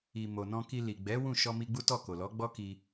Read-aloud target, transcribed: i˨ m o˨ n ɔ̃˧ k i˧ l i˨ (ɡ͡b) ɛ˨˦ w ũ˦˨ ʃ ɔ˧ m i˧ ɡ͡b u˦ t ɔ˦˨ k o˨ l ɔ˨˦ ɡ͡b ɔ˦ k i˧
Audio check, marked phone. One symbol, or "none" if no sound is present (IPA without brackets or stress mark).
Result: ɡ͡b